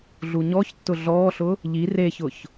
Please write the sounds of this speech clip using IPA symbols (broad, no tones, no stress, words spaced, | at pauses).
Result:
ɮuɲɔçtːʊ ɮɔːɬʊ | ʎi reçʊç